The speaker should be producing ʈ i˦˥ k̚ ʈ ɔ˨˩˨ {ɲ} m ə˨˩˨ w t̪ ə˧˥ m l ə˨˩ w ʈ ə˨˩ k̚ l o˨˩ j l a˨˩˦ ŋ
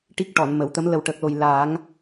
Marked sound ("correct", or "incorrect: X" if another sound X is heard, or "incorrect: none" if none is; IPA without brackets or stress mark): incorrect: n